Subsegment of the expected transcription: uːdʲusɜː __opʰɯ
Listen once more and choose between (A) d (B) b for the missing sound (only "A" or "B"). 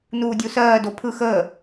A